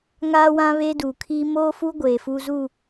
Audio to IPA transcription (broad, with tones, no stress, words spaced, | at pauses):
ŋaː˦wã˦ βe˦duː˨kʰiː˦ moː˦fu˦ ɡʷeː˨fu˦ zu˦˨